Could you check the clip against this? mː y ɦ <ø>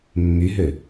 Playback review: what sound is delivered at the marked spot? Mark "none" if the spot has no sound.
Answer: ø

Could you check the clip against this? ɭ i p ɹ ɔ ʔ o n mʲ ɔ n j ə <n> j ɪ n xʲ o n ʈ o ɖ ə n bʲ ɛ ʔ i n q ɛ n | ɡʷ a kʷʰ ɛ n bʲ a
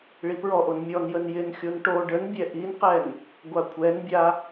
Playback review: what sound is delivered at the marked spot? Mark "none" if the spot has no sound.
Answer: n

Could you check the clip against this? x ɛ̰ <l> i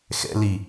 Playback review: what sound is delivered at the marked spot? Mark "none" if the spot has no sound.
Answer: l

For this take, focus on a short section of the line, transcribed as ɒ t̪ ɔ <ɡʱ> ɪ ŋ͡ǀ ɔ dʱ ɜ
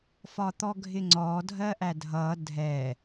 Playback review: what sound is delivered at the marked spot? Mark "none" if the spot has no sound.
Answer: ɡʱ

